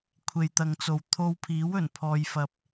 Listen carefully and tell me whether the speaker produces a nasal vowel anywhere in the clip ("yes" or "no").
no